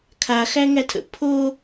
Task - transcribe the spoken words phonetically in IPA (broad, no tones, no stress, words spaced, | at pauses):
kʰa xæŋætʰə̰ pʰo